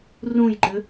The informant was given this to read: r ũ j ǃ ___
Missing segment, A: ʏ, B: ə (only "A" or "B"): A